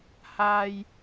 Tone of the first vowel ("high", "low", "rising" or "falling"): low